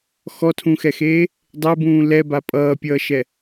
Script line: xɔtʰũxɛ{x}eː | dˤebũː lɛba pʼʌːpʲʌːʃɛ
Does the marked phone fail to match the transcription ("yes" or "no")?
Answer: no